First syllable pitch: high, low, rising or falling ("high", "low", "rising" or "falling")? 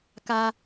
high